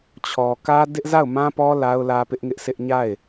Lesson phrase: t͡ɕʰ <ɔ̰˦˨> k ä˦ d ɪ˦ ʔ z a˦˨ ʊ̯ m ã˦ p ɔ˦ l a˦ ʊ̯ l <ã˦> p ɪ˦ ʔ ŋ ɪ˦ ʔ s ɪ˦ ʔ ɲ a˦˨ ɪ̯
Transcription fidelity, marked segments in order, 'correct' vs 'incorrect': incorrect: ɔ˨, incorrect: ä˦

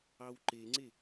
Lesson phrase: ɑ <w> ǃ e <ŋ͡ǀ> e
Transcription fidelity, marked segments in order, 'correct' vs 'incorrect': correct, correct

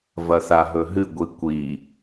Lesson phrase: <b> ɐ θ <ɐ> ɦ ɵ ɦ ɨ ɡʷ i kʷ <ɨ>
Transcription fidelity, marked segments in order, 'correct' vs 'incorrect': incorrect: v, incorrect: a, incorrect: i

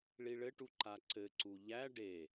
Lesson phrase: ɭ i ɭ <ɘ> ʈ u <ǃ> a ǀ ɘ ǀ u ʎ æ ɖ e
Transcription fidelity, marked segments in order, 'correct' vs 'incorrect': correct, correct

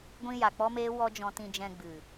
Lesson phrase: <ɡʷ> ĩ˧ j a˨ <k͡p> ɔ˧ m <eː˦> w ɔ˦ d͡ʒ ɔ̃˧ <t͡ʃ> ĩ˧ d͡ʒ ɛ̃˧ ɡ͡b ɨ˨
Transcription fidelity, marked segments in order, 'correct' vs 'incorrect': correct, correct, incorrect: eː˧, incorrect: t

